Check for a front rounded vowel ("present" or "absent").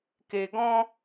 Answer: absent